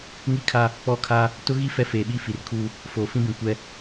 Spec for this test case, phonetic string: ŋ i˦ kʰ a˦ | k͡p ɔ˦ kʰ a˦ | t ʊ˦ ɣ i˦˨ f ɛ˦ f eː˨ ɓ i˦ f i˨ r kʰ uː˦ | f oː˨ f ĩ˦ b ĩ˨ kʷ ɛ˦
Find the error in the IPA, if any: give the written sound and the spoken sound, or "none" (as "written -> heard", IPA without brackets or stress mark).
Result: none